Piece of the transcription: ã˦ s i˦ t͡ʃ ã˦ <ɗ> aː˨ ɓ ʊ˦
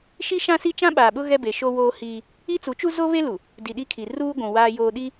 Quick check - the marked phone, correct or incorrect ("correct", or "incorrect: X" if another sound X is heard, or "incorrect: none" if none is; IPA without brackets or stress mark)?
incorrect: ɓ